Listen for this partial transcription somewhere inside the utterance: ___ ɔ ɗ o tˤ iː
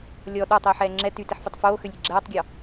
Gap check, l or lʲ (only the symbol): lʲ